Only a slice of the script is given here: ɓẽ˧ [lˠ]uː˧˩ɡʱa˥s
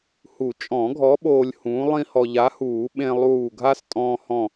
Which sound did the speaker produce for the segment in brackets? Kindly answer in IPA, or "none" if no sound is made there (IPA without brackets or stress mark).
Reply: lˠ